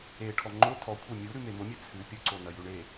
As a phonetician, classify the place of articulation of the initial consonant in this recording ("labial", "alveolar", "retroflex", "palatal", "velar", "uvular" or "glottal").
retroflex